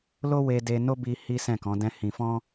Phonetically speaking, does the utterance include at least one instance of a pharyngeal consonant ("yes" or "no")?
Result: no